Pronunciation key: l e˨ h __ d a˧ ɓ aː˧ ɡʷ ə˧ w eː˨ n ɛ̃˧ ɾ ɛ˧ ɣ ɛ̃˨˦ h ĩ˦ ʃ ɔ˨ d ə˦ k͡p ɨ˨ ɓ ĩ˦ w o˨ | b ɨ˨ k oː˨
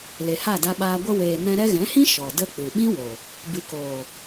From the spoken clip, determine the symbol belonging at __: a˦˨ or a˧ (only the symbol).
a˦˨